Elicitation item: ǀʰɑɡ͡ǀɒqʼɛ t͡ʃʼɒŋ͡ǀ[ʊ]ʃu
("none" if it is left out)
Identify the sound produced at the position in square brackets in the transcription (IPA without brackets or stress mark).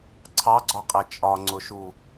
ʊ